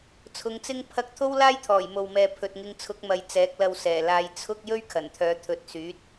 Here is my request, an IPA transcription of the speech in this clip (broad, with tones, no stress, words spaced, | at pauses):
t͡sʰʊ˨˧ŋt͡sɪ˥ŋ pʰɐ˥k̚ t̪ʰo˥w laː˥jt̪ʰɔː˨˩j mo˨wmɛː˨ pʰɵ˨t̚ŋɪ˧ŋt͡sʰʊ˨˥k̚mɐ˨j t͡sɛː˨˥k̚lɐ˧wsɛː˨˩ laː˧j t͡sʰʊ˥k̚ jɵ˥ɥkʰɐ˨˩nt̪ʰœː˨˧ t̪ʰɵ˨˥t̚syː˨˥t̚